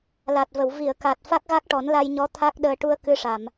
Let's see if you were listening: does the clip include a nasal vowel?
no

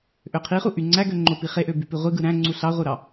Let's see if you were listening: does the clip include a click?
yes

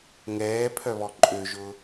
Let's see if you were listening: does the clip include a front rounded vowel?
yes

